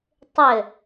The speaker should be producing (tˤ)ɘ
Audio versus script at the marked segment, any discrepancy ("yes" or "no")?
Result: no